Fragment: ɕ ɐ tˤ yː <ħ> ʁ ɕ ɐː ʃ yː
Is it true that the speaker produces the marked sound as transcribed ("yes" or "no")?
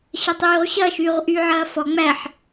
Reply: no